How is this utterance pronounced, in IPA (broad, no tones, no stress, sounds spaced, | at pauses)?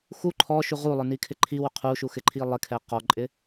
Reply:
x u ǃʰ ɔ ʃ u ʁ u lˠ ə˞ n i kʰ ɪ ǃʰ i w ʊ qʰ u ʃ u x ɪ ǃʰ i lˠ ɪ kʰ ɛ q ɔ ǃʼ ɪ